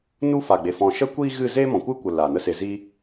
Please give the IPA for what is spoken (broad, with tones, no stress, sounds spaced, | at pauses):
n u˦ f a˨ ɡ͡b e˨ f ɔ̃˧ ʃ ə˦ kʷ iː˦ ɣ ɨ˦˨ z e˦ m ɔ̃˨ kʷ ɨ˦ kʷ ə˨ l a˨ n ə˦ s e˧ z iː˦